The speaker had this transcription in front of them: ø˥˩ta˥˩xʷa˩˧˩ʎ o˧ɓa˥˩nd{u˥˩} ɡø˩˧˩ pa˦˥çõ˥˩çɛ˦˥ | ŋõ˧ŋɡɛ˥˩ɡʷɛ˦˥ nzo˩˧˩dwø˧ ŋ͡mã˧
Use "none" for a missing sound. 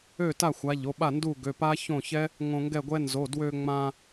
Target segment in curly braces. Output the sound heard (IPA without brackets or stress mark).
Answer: u˥˩